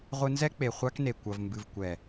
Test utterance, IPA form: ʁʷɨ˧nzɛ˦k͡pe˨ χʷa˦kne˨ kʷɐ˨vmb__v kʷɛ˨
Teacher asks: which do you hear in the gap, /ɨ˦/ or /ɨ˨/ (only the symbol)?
ɨ˨